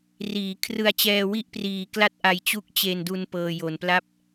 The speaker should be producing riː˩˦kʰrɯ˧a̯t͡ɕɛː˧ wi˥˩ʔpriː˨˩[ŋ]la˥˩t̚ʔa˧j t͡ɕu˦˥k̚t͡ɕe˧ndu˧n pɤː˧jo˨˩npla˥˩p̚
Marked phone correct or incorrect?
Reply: incorrect